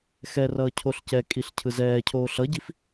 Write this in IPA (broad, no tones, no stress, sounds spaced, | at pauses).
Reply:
x ɛ r ʌː cʰ o ɬ c ɛ kʼ i ɬ cʰ ɯ z ɛː cʰ oː ɬ ʌ ɟ i f